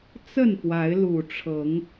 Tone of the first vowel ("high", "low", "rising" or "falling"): falling